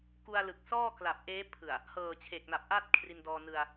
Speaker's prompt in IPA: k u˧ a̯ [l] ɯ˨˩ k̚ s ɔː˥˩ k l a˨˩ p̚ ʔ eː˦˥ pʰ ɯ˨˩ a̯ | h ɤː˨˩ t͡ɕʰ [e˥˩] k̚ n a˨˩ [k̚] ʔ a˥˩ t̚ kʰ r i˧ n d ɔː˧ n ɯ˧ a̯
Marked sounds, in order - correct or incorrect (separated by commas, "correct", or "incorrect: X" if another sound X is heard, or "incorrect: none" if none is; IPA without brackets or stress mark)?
correct, incorrect: e˨˩, incorrect: p̚